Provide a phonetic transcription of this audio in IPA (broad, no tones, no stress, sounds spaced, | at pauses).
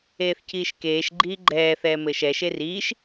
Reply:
eː θ c iː ʃ k eː ʃ ɡ͡ǃ iː ɡ͡ǃ ɛː θ ɛː m ɘː ʃ ɛ ʃ e r iː ʃ